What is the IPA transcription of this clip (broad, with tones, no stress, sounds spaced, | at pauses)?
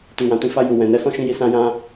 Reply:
t i˨ w ã˨ t ĩ˧ f a˧ j u˨ w ɛ̃˨ n ɛ˨˦ s ɔ̃˦ ʃ ĩ˧ j i˧ s ã˦ j ã˦